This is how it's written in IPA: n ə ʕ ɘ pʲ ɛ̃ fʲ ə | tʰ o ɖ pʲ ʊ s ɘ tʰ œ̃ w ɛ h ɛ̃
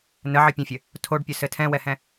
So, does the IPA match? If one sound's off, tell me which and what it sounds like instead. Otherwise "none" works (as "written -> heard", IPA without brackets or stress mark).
œ̃ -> ɛ̃